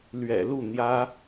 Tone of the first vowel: low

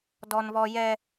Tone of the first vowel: high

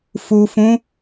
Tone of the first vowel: low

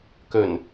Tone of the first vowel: low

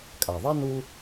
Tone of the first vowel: low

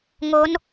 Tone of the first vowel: rising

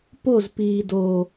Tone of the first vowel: falling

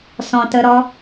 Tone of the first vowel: low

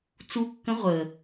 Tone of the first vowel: rising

